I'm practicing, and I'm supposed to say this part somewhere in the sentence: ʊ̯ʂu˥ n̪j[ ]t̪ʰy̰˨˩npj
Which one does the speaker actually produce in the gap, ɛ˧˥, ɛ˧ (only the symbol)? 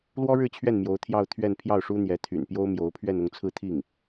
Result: ɛ˧˥